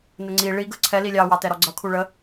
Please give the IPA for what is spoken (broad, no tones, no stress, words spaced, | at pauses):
nəŋ͡ǀi ɭi ɡəǀʰɛ lilʲɑ wɑtɛɾɔɡ͡ǀʌ kʰuɭə